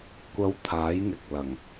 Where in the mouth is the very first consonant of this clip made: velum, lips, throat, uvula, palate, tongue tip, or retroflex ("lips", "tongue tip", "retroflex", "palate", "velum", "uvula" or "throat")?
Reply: velum